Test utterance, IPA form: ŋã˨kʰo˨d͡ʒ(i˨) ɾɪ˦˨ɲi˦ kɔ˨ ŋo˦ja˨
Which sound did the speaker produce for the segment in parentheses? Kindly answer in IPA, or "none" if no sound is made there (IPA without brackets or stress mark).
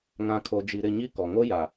i˨